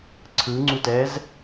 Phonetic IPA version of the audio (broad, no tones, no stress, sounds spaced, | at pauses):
ǀʰ ɯ ŋ͡ǀ u t ɛː z